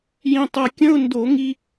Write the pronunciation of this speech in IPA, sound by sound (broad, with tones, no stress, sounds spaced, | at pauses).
j ĩ˧ tˤ ɐ˧ kʲ ə̃˧˥˧ ʊ̯ n d o˧˩˧ ŋ i˧